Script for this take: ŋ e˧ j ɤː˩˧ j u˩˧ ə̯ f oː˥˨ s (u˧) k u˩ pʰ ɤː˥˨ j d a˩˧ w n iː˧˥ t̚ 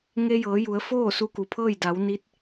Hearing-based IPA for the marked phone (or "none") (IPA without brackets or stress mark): u˧